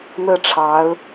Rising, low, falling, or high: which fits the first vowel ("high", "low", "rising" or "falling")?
falling